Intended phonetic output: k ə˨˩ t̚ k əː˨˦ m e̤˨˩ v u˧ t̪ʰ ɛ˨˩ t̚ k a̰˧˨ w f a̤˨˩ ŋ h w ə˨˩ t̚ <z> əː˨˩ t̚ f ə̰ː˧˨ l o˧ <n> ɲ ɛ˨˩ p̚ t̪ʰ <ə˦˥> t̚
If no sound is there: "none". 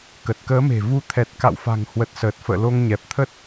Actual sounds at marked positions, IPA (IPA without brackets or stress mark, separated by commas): s, ŋ, ə˦˥